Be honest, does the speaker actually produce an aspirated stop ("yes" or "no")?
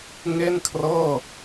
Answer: yes